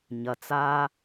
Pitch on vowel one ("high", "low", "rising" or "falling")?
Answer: low